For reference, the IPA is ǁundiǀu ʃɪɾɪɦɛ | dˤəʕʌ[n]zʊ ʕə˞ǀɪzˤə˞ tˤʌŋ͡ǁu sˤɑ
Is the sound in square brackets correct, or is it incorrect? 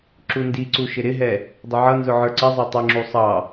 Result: correct